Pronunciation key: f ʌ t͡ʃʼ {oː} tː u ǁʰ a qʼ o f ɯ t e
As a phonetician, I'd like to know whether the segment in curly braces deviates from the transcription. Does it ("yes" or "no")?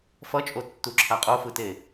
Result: yes